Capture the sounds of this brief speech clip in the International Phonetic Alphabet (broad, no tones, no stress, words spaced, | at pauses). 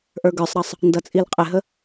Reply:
ʔə˞ɡə˞sˤɾɑsˤ | ndʌt͡sʼilqʼɪɦə